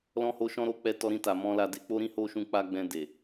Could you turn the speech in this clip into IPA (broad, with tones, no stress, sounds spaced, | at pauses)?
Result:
l ɔ̃˧ h o˧ ʃ ɔ̃˦ ɾ o˧ k͡p ɛ˧ t ɔ˧ ɾ ĩ˧ t a˨ m ɔ̃˧ l a˧ d e˧ k͡p o˦ ɾ ĩ˦ h o˦ ʃ ũ˧ k͡p a˦ ɡ͡b ɛ̃˧ d e˨